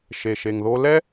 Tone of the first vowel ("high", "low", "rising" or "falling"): low